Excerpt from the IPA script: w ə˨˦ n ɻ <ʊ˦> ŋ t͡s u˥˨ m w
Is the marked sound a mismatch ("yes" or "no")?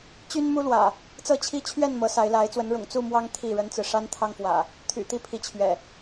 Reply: yes